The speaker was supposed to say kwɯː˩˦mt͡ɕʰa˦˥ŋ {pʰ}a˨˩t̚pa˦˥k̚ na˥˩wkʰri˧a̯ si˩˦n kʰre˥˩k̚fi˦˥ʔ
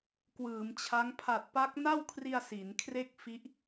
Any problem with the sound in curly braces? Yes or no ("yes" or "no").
no